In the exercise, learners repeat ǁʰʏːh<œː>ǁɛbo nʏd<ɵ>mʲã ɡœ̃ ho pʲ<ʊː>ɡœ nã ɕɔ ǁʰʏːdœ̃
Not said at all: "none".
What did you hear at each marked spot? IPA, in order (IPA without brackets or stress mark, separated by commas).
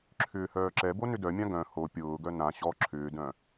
œː, œ, ʊː